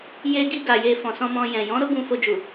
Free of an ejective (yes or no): yes